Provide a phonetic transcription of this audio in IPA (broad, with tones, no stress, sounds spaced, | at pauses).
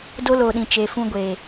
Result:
d o˦ l oː˨ ɗ ĩ˨ t͡ʃ e˨ f ũ˧ ɡʷ e˨